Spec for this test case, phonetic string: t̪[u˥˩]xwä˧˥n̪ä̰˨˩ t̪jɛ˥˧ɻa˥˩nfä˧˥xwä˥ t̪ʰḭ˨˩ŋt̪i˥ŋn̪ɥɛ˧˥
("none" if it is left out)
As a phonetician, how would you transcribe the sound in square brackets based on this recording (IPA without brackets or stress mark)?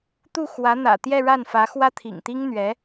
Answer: u˥˩